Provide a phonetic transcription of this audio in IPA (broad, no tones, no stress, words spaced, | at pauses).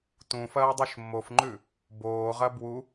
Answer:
tũfɐː dˤuʃmːofŋ͡ǃʉ | boːʁɐ bwu